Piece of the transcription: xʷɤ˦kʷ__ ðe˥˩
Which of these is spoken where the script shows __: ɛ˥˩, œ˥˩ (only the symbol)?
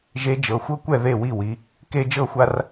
ɛ˥˩